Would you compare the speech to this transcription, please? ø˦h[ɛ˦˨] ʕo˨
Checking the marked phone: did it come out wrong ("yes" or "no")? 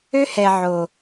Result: yes